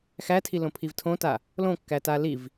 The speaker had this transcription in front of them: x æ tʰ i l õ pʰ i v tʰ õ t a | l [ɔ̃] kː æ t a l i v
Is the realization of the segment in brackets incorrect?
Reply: yes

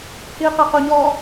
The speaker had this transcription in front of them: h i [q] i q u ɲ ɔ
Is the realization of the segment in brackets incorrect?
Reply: no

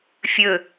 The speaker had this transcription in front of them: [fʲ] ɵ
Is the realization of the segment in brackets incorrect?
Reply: no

